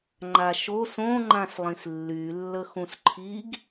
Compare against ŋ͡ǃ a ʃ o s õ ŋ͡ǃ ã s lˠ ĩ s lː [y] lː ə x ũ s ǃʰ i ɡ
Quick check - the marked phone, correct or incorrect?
correct